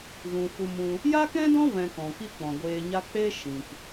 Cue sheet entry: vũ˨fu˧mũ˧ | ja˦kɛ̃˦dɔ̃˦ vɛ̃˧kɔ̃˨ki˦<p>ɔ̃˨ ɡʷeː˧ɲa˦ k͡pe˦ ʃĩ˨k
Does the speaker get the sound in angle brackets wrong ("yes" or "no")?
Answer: yes